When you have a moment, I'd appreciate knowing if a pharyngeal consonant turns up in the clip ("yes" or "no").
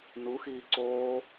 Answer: no